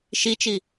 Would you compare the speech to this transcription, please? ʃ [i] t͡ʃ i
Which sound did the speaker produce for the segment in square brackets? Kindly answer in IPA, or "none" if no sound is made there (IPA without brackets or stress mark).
i